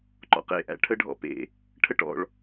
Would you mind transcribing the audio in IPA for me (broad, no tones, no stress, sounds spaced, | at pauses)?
ǃ ɔ̰ q ḛ ʔ æ̰ ʈʰ ə ɖʱ ɔ̰ p ḛ | ʈʰ ə ʈ ɔ̰ ɭ